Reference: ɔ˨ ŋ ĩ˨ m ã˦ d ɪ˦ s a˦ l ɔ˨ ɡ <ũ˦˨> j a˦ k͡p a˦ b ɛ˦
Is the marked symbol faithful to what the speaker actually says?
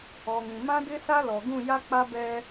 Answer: yes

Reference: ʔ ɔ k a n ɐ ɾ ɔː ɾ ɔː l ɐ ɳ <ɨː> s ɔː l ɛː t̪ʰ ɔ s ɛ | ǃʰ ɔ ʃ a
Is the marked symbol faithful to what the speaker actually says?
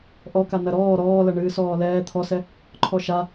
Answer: yes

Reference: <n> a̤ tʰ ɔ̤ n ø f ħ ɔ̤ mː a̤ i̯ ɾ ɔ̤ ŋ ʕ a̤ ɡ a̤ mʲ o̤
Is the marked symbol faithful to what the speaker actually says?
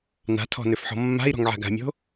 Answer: yes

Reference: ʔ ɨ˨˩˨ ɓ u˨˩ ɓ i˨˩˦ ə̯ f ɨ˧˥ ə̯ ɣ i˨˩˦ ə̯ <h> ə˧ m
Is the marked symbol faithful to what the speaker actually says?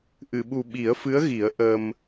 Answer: no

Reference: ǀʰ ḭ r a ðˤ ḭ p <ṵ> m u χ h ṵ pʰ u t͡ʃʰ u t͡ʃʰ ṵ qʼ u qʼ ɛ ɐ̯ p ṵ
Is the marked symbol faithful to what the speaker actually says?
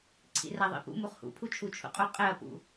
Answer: yes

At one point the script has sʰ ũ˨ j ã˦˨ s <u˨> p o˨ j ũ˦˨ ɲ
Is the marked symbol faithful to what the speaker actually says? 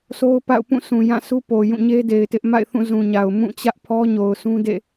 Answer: no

